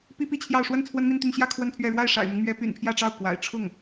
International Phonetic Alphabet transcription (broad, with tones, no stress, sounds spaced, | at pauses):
p i˥ p i˥˧ t͡ɕʰ j ɑ˥˧ ʊ̯ ʂ w ə˥˩ n t͡sʰ w ə˥ n m i˥˧ n t̪ y˥˧ n ɕ j ä˥˧ kʰ w ə˥˧ n pʰ ɥ ɛ˥˧ ɻ w a˥˩ ɪ̯ ʂ a̰˨˩ ɪ̯ m ʊ˦ ŋ m ɥ ɛ˧˥ p y̰˨˩ n pʰ j ä˥˧ ʈ͡ʂ ɑ˥˩ ʊ̯ k w a̰˨˩ ɪ̯ ʈ͡ʂʰ ʊ˥˩ ŋ